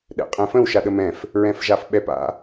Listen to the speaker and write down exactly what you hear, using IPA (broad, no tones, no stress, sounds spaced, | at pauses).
ɗ ɛ̰ qʼ ɛ̃ f ə̃ w ʃ a ɗ ə m ɛ̃ f | ɹ ɛ̃ f ʒ a f ɓ ɛ p a̰